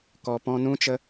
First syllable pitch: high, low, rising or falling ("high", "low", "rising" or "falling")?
low